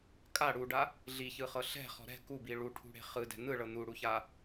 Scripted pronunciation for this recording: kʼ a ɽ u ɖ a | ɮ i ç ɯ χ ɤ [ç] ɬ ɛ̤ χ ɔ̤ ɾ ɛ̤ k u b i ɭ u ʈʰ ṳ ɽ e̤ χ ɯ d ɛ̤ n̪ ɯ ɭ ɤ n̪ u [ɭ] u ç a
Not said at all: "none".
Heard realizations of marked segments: none, ɽ

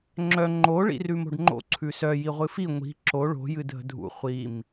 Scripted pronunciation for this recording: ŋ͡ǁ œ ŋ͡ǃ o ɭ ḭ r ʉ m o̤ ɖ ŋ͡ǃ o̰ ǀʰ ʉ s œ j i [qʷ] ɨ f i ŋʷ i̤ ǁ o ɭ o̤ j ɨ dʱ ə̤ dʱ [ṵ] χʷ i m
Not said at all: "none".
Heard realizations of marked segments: ʁʷ, ṵ

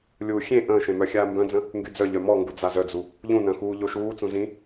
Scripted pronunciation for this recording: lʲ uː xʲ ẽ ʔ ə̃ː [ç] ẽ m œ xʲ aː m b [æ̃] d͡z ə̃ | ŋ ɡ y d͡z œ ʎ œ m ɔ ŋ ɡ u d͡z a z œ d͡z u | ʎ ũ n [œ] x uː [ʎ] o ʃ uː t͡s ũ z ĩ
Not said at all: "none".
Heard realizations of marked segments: ʃ, œ̃, œ̃, ʎ

